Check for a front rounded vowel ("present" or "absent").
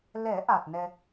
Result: absent